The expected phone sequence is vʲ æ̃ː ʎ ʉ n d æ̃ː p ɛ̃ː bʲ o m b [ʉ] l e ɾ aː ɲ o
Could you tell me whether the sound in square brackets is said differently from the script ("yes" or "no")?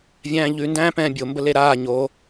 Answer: yes